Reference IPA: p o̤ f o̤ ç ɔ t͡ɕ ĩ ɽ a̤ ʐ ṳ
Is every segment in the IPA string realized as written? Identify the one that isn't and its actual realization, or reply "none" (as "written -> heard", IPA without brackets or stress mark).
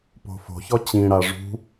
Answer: a̤ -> a